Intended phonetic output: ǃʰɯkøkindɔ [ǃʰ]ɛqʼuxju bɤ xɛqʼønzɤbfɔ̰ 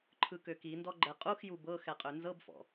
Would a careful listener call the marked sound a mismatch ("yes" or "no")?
yes